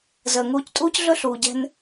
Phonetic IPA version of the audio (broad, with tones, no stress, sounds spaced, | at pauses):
z əː˨ ŋ uː˧ c tʼ uː˦ c ɮ ɵ˦ ɬ uː˨ ɟ ɛ̤˧ n